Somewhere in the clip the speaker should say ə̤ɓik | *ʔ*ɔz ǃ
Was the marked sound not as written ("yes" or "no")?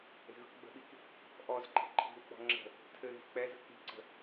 no